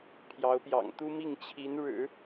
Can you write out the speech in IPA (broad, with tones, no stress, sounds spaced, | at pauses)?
pʰ j ɑ˧˥ ʊ̯ p j ɑ̰˨˩ ŋ t̪ u˥ m i˥˩ ŋ t͡ɕʰ i˧˥ n ɻ ɻ̩˨˩˦